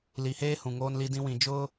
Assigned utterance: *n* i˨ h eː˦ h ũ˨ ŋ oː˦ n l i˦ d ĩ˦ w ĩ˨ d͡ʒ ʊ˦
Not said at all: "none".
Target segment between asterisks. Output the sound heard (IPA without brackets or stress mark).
l